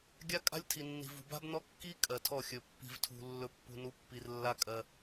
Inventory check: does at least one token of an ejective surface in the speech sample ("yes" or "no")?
yes